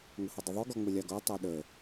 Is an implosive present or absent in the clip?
present